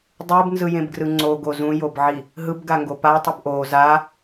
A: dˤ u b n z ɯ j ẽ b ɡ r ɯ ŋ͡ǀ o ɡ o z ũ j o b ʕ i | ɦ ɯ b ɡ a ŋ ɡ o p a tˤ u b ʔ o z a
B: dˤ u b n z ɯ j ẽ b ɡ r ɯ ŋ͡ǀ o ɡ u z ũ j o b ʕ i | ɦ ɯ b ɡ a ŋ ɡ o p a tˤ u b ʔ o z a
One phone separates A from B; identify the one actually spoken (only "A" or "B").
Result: A